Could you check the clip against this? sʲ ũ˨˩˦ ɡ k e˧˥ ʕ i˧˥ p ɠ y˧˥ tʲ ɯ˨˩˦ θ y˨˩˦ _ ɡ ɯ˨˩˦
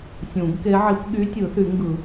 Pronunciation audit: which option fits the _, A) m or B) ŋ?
B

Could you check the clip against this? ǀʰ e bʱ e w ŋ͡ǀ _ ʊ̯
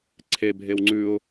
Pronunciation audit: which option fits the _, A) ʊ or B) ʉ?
B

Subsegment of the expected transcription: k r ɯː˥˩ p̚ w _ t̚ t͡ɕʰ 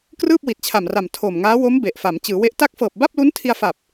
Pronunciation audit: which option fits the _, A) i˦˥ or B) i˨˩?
B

